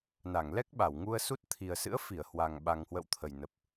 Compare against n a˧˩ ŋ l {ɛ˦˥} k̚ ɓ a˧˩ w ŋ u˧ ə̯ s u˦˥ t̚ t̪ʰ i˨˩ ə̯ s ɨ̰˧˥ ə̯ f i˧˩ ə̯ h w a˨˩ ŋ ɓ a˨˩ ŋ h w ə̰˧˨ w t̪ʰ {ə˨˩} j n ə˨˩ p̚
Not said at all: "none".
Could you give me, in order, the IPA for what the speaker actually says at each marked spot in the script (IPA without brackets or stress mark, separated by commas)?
ɛ˦˥, ə˨˩